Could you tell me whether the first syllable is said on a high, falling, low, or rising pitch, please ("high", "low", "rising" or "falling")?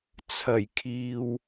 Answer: low